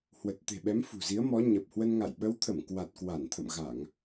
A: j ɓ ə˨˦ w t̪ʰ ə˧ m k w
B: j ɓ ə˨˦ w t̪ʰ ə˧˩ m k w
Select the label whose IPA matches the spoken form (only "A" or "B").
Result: B